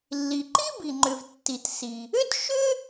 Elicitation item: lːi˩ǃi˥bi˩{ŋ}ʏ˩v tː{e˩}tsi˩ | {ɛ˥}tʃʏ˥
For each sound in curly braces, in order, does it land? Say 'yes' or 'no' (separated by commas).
no, no, no